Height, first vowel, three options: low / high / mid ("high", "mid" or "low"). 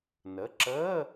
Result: mid